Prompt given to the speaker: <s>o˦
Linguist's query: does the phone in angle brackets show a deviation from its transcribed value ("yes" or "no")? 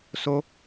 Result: no